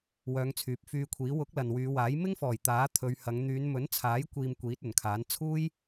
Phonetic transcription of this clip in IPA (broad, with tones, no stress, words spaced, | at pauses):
wœː˨˧ŋt͡sʰyː˨p̚fyː˧kʷʰiː˨˥ wʊ˨˥k̚ lɐ˨nwyː˨˧waː˨˥j mɪ˥ŋfɔː˨˩j t̪aː˨˥t̪ʰɵ˨˧ɥ hɐ˨˧ŋ n̪yː˨˧nmɵ˨˥nt͡sʰaː˨˥j kʷiː˧mkʷiː˨˥t̚ ɵ˨˩nkʰaː˨˥n t͡sʰuː˥j